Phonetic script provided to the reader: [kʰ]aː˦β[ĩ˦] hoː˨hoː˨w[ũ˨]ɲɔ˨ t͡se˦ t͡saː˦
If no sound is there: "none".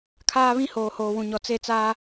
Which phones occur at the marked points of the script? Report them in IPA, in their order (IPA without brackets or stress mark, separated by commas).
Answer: kʰ, ĩ˦, ũ˨